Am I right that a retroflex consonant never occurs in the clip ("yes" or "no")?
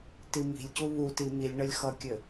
no